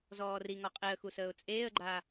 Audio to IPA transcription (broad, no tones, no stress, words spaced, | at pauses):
zɔːriŋɔ qʼeə̯xusəːʊ̯ t͡sʼeːə̯ɡ͡ǃaː